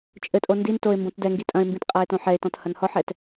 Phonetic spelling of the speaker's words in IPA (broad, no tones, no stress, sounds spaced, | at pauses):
t͡ʃʼ ɘ tʼ o n d i n t o ɪ̯ m b õ t d ɛ ŋ ɡ i tʼ ɐ̃ ɪ̯ m b ĩ t qʼ a ɪ̯ t õ ħ ɛ ɪ̯ t ɔ̃ t h ɐ n h ɔ ħ ɛ t